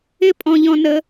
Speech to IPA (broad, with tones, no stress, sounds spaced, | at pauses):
ɪ˦ pʼ ɔ̃˧ ʎ ɔ̃˧ n ə˧